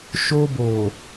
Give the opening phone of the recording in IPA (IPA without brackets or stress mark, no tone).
ʃ